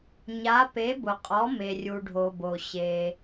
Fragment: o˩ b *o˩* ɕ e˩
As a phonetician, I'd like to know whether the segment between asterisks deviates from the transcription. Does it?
no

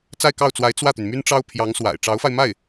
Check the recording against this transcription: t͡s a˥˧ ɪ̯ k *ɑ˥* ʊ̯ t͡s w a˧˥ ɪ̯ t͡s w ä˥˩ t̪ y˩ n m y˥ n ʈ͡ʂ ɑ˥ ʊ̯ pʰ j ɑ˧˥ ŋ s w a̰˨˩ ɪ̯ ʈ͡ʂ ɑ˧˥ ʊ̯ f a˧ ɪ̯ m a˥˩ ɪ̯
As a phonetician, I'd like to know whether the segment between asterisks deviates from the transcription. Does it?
yes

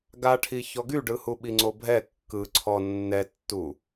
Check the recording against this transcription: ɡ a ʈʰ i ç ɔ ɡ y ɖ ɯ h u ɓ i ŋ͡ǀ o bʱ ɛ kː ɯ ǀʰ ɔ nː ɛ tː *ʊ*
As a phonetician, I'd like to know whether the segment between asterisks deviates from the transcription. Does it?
yes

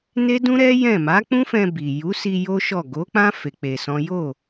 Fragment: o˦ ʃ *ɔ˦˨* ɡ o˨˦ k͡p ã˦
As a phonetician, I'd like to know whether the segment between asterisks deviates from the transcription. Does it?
no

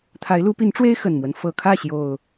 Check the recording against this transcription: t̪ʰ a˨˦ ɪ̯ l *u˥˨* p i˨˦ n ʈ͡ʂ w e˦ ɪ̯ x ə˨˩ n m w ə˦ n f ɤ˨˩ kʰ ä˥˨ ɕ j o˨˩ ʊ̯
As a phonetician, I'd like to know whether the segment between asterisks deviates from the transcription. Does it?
yes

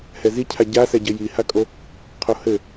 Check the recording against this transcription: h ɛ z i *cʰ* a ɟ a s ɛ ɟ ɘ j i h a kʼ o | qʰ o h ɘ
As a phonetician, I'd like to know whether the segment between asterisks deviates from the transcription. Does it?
no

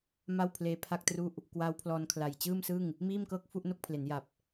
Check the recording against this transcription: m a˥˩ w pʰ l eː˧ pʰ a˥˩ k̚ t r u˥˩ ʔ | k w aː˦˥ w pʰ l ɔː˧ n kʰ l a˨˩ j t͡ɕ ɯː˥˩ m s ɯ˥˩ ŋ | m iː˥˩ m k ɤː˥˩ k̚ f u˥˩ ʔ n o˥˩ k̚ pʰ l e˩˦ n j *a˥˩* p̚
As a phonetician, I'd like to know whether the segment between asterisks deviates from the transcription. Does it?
yes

